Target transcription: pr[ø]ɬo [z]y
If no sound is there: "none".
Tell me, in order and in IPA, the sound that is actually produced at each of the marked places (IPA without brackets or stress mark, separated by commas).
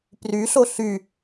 y, ɬ